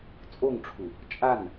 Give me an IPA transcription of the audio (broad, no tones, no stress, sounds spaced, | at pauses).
t͡sʼ o ŋ ʈ͡ʂʰ u | t͡ʃʼ a n